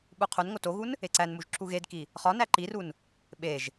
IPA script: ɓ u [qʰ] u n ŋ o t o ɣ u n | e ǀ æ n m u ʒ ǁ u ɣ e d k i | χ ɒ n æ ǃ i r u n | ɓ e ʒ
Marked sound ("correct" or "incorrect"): correct